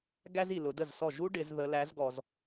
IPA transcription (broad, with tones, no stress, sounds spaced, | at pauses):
ɡ æ˥ z i˨ l ʊ˨˦ d ə˥˩ z s ɔ˥˩ ʒ u˥ ɖ ɪ˨˦ z ð ə˨˦ l æ˨˦ z ɡ ɔ˨ z